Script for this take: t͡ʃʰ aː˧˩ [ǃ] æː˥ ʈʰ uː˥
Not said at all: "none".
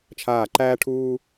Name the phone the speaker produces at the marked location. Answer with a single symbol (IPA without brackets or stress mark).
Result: ǃ